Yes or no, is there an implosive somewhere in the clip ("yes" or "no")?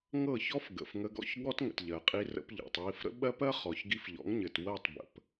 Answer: yes